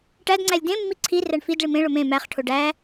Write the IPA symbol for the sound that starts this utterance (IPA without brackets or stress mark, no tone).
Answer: ʈ